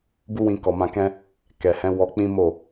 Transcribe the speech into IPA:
b u˦ w ĩ˧ k ɔ˨ m ã˧ k ɛ̃˦ | k ɛ˨ h ɛ̃˨˦ w ɔ˧ k͡p ĩ˦ m o˦˨

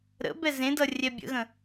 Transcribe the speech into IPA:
ɾ ə̰ b ɛ z ẽ d ʌ rʲ ɛ bʲ ə̰ ɣ ə̃

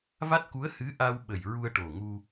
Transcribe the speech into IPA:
v a˦˥ t̚ k u˧˥ ə̯ h ɨ˧˥ ʔ a˧ w ɓ ə˨˩ j ɹ u˧ ə̯ ʈ o˨˩ ŋ u˧

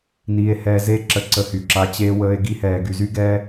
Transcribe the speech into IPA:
n iː˧ e̯ h ɛː˧ z e˦˨ ǁ ə˧ ǀ ə˧ h y˨ ǁ a˧ t͡ɕ eː˧ w əː˧ e̯ ɡ i˧ h ɛː˨ ɡ y˨ z y˦ ɡ ɛː˦

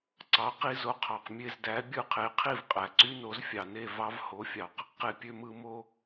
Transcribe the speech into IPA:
ǀ ɑ˩˥ q i˧ z o˩˥ qʰ ɑ˩ q mʲ e˥˩ z d æ˩˥ bʲ ɯ˥˩ qʰ e˩˥ qʰ i˥˩ v qʼ æ˩ ǀ y˥ n o˩˥ z fʲ ɑ˩ n e˥˩ v ɑ˧ v h o˩˥ fʲ ɑ˩ q | q e˧ pʲ ø˧ m ɯ˧ m o˧

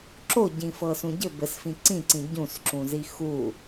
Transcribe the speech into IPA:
ǁ o ɟ ĩ f ɤ s ũ ɟ ɘ b ɘ s f ĩ ǀ ĩ ǀ ĩ ɟ ũ s ǁ ũ z i x u

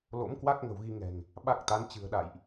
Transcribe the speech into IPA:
l o̰˧˥ m k w a˦˥ k̚ ŋ ə̤˨˩ w ɣ i˧ ŋ ɛ̤˨˩ ŋ | ɓ a˦˥ k̚ t̪ a˨˦ n t͡ɕ ɨ̤˨˩ ə̯ ɗ a̰˧˨ j ʔ

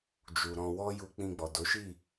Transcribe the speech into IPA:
d͡ʒ u˨ ɾ ɔ̃˧ w ɔ˦ j u˧ k͡p ĩ˧ ɡ͡b ɔ˨ d o˨˦ ʃ i˦˨

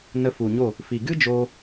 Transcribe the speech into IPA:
n ə˧ f u˨ ɲ o˦˨ | f i˨ ɡ ɨ˦ d͡ʒ oː˧

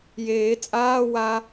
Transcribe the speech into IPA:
j eː t͡sʼ aː w a

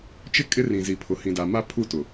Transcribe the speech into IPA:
t͡ʃ ɪ˦˨ kʼ ɪ˦ r ĩ˨ z i˨ pʰ ʊ˨ h ĩ˨ d a˨ m a˦ pʰ u˦˨ t ʊ˨

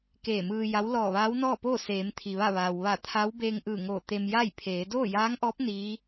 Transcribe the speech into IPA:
k eː˧˩ m ɯː˧ j a˧˥ w l ɔː˧˩ ʋ aː˧˥ w n ɔː˥˨ p oː˥˨ s eː˩˧ m t̪ʰ i˩ ʋ a˥˨ ʋ aː˩ w ʋ a˧˩ t̪ʰ a˧˥ w b eː˧ ŋ ʔ ɯː˧˩ ŋ oː˧˩ t̪ e˧ m j a˥˨ j pʰ eː˩˧ d oː˥˨ j aː˧˥ ŋ ʔ ɔː˧˥ p̚ n iː˧˥

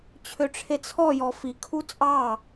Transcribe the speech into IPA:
t͡ɕʰ ø ʈ͡ʂʰ e t͡sʰ ɔ j ɔ f i kʰ u t͡sʼ ɑ

